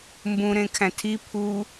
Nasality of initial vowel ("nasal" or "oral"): nasal